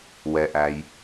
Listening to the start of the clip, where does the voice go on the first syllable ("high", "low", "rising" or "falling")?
low